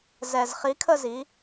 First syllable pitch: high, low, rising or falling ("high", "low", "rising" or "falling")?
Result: low